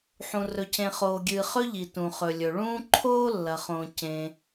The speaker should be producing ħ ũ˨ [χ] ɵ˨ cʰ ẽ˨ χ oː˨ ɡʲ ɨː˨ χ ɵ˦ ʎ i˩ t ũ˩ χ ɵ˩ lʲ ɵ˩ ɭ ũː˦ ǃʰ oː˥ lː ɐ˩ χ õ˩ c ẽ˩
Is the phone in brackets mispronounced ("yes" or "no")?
yes